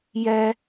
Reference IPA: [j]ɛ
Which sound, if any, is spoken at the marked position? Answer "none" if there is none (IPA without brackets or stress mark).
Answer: j